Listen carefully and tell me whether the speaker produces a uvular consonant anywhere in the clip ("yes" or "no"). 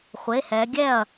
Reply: yes